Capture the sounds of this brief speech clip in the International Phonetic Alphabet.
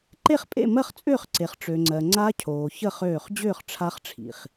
ǃ e˥˨ χ pʼ ḛ˥˨ m ɜ˥˨ χ t͡sʼ ʏː˥˨ χ ǀ e˨ χ ʈ͡ʂ ø˨ ŋ͡ǀ ɜ˨ ŋ͡ǀ a˦˥ cʰ oː˨ ç ə˥˨ χ øː˥˨ χ d͡ʑ ʏː˥˨ χ ʈ͡ʂʰ a˦˥ χ ʈ͡ʂʰ ḭ˨ χ

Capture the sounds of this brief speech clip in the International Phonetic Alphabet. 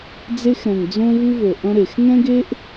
d͡z e˥ x ɾ ɛ̃˨˩ ŋ d͡z õ˥ v ɨ˥ v o˨˩ ʔ ɐ̃˥ ɾ e˨˩ x ŋ ɛ̃˥ ɡ e˥ ʔ

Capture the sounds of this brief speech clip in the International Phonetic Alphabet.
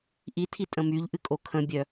ʔ i tʰ i tʼ ə̃ m y ʎ ʔ ɨ kʼ o kʰ ə̃ bʲ œ

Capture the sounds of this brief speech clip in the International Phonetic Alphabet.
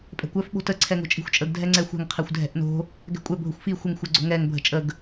pʼ ɛ̤ kʷ œ f ɓ o̤ t ə ǀʰ ɛ ŋ o̤ t͡ʃʼ i̤ xʷ t͡ʃʼ ə ɡ dʱ ɛ ŋ͡ǀ ɛ xʷ ɛ̤ ŋ qʰ ɛ xʷ dʱ ɛ̤ ʔ n o̤ | ɡ ɛ̤ kʷʼ ɛ bʱ ʊ xʷ f i xʷ ə ŋ xʷ ɛ ɡ͡ǀ o̤ ŋ ɛ ŋ bʱ ə̤ t͡ʃʼ ə ɡ

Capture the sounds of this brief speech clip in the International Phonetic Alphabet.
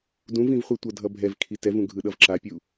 d ũ v ĩ v χʷ e tʷ ʌ dʱ ʌ bʱ ɛ v kʰ i t ɛ v ũ ɡʱ ɯ ɗ ʌ v ǁ a pʲ u

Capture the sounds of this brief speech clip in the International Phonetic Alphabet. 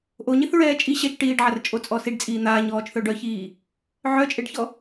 ʔ o ɲ i θ ɹ ɛː t͡ʃʼ i ɕ ɛ t͡ʃ ʈ iː ɖ ʕ a r t͡ʃʼ o t͡sʼ ɔ s i ɖ t͡sʼ iː n̪ aː ɲ ɔː t͡ʃ θ œ ɖ œ ç iː | ʕ œ t͡ʃʼ e ɖ ç ɔ

